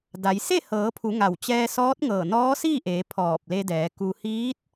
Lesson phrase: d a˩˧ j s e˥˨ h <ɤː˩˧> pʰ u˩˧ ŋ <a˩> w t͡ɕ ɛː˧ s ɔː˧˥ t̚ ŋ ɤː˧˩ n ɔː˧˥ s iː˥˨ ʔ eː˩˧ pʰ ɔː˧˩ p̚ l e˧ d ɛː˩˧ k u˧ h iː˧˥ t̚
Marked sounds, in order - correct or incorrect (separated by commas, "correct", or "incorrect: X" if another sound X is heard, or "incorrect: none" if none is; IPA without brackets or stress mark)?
correct, incorrect: a˧˩